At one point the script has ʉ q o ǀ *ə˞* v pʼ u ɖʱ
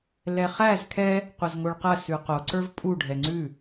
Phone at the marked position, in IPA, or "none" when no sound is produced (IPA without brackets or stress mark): ə˞